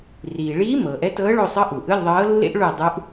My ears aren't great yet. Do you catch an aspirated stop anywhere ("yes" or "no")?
no